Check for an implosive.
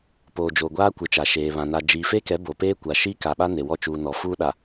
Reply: present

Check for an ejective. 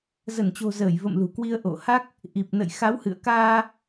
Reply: absent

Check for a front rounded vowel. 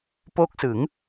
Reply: absent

